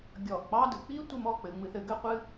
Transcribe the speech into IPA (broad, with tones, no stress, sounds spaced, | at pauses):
ɡʲ ɔ˧˩ ʔ k͡p ɑ˥ d ɯ˩˧ k͡p i˥ tʷ ɘ˥˧ m ɔ˥˧ k͡p ɘ˧ ŋ͡m ɨ˧ θ ɘ˩˧ ɡ ɘ˥ qʷ ɨ˥